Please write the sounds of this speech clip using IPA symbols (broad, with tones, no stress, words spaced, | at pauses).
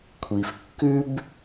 kʷʰi˩fkːʉ˥b